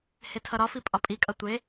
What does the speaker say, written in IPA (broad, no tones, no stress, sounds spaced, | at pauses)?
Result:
h e tʰ ʌ ɾ ɒ f i pʼ ɒ pʼ i kʼ ʌ tʷ e